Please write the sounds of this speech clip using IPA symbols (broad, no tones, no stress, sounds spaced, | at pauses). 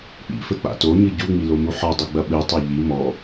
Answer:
k͡p ḭ f ɘ k͡p a̰ t o ɲ ɨ ɟ u ŋ͡m i l o m u ħ ɔ dˤ ɨ ɡ͡b ɐ ɓ ɨ tˤ a ʎ i m ɔ